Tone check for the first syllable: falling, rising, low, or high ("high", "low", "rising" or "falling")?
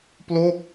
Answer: falling